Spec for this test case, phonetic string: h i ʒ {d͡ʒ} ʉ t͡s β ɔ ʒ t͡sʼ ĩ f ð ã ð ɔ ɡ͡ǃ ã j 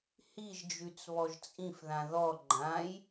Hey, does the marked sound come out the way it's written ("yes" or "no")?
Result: yes